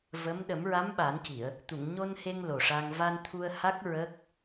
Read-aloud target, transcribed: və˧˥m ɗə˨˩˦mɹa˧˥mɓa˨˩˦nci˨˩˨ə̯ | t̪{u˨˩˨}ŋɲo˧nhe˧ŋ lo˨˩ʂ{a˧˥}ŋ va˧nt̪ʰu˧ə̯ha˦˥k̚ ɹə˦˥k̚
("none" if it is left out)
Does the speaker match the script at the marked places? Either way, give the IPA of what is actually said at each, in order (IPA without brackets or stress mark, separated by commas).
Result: u˨˩˨, a˧